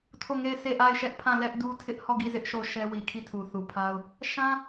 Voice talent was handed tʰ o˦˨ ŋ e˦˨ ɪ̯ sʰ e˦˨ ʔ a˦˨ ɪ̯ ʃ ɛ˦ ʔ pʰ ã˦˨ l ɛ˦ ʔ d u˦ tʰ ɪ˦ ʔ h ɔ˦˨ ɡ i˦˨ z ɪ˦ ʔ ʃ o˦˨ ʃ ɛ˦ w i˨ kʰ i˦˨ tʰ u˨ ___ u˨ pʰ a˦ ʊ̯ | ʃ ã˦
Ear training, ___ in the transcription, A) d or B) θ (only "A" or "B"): B